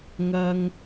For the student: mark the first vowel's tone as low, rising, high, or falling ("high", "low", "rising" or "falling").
high